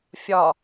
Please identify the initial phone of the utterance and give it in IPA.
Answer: fʲ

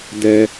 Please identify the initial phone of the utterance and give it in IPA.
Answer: d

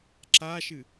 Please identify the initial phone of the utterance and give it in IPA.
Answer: ǁ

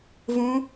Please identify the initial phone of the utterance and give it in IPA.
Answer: v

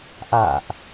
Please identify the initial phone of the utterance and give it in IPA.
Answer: ʔ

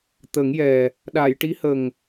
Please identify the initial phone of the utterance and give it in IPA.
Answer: t̪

